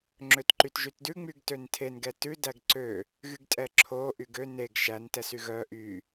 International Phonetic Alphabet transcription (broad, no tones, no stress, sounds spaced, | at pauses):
ŋ͡ǁ ø t ǃ y t ʒ y t d ʉ ŋ͡m y ɡ t ø n tʰ e n ɡ ɛ t ʉ d æ ɡ ǀ ø | ɣ y ɡ tʼ ɛ ǁʰ o ʔ y ɡ ø n e ɡ ʃ æ n t ɛ s y ɣ œ ʔ y